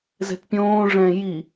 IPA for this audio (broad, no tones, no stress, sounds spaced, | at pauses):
z ɛ̤ t pʲ õː ʐ ɛ̃ j i